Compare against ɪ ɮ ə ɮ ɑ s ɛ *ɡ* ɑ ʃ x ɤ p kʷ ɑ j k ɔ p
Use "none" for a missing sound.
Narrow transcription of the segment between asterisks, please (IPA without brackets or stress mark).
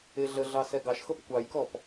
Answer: ɡ